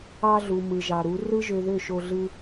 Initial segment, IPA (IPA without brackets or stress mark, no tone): ɑ